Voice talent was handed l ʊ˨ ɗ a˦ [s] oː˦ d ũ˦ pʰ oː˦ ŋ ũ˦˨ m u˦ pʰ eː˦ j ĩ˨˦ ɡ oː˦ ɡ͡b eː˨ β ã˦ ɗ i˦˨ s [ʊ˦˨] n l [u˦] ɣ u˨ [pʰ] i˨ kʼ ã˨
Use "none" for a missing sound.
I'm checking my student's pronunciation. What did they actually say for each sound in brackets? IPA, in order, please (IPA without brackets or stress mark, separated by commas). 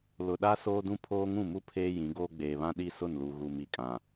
s, ʊ˦˨, u˨, m